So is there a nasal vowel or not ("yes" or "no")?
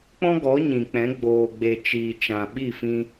yes